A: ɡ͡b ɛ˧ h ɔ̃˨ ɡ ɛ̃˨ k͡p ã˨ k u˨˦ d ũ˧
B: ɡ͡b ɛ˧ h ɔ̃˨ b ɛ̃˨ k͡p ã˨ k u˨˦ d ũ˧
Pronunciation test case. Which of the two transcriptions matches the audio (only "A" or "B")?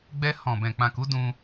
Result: B